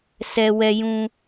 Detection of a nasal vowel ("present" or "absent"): present